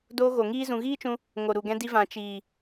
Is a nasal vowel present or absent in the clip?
present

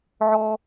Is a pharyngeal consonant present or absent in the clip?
present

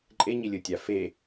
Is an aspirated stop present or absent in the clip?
absent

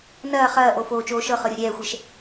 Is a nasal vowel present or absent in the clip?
absent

